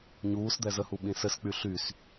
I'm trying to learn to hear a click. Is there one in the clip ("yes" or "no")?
no